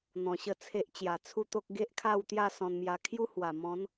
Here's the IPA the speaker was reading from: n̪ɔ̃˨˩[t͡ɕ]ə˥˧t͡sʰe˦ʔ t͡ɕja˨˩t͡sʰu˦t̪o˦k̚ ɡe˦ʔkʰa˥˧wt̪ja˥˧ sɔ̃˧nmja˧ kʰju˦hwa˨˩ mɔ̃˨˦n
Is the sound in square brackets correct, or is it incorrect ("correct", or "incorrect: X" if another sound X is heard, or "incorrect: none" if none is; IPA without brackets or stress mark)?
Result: incorrect: ɕ